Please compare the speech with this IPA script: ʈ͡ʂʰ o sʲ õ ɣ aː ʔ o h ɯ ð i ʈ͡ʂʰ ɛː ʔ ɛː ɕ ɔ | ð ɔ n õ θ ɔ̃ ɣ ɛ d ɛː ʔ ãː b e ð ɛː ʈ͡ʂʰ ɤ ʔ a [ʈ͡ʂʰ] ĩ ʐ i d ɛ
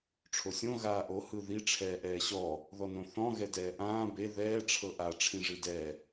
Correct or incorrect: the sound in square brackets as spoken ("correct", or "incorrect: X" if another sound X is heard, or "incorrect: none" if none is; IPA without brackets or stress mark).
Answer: correct